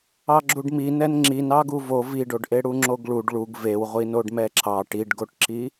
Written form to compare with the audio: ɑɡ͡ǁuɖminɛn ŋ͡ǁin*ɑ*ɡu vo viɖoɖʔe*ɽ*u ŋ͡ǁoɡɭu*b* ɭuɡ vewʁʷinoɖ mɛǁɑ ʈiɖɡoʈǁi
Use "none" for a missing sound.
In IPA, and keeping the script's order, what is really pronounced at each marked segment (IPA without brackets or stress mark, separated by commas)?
ɑ, ɽ, ɖ